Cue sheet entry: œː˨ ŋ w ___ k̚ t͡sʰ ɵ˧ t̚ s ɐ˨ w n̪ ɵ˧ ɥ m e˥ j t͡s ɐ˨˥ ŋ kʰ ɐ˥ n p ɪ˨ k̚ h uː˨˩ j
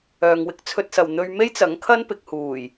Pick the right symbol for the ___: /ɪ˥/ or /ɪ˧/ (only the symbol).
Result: ɪ˧